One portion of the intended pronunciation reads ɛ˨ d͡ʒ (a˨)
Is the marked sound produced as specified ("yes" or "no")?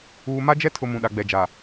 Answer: yes